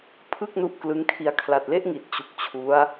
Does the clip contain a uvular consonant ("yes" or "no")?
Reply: no